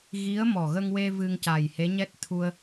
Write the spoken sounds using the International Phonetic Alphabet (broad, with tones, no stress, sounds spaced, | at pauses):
ɣ i˧˥ ə̯ m ɔ˨˩ ɣ ə˧ ŋ w e˧ v ɨ˧ ŋ c a˨˩ j h e˧˥ ɲ ɛ˦˥ t̚ t̪ʰ u˧ ə̯